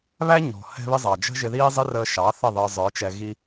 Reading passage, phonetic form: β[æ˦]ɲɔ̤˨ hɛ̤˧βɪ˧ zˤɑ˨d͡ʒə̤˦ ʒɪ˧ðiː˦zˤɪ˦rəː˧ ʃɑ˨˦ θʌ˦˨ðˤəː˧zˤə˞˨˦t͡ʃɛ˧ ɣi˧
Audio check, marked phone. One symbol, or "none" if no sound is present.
æ˦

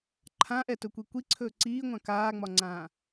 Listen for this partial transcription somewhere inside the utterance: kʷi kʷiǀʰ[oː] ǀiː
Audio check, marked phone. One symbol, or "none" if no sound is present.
ɵː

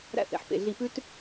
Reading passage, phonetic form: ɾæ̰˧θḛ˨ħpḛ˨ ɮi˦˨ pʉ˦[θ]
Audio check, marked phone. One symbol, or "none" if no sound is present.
t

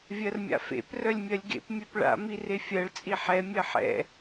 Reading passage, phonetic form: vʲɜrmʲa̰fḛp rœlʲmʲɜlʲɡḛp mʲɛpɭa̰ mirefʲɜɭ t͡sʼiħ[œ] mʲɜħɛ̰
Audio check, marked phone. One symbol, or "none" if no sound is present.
ɛ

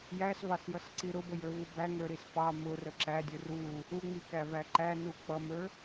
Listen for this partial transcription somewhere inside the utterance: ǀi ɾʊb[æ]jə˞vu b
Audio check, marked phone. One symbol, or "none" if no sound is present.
ə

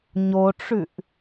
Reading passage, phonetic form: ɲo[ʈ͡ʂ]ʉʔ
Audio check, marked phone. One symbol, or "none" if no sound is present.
ʈ͡ʂ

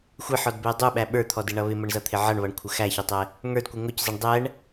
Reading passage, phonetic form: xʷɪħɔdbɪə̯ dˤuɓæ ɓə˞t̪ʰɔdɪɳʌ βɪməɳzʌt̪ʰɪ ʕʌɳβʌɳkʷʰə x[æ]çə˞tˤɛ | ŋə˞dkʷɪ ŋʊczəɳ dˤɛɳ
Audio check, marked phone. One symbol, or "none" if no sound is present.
æ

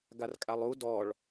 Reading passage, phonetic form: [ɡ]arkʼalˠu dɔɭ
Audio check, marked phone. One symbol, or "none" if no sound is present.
ɡ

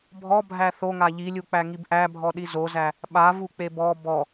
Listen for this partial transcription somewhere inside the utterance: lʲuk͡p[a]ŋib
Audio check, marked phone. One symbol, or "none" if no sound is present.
æ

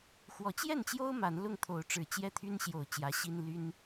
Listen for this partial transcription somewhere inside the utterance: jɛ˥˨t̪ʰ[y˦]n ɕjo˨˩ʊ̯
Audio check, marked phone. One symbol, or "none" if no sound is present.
y˦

